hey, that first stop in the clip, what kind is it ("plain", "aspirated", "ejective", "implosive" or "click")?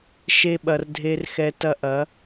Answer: implosive